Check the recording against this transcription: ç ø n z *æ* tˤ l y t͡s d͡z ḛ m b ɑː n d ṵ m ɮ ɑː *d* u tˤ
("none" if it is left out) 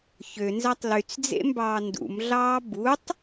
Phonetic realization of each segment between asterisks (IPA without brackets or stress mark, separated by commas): æ, b